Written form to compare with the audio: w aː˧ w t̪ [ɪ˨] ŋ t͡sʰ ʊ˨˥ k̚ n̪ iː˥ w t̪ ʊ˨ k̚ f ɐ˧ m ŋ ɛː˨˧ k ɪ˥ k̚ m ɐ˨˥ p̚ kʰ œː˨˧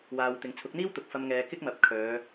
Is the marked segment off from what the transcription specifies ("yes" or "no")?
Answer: yes